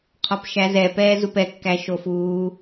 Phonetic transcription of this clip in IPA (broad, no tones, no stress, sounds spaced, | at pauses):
qʰ ɒ p ʃ æ z ɛ p ɛː z u p ɛ kː æ ʃ o f uː